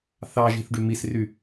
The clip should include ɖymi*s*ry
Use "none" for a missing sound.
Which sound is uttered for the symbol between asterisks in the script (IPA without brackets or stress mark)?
s